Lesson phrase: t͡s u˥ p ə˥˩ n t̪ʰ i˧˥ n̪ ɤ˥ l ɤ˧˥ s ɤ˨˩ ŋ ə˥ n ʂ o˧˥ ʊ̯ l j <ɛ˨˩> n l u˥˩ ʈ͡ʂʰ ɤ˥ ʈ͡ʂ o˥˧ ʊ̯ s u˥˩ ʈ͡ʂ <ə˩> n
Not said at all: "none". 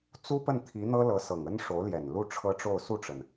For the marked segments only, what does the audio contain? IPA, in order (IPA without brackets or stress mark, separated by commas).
ɛ˨˩, ə˩